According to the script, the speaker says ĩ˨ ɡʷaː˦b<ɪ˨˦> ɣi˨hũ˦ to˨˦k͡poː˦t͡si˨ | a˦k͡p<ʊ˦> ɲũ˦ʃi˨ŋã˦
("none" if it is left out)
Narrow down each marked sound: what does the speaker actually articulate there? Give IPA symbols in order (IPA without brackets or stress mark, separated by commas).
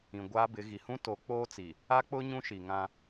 ɪ˨˦, ʊ˦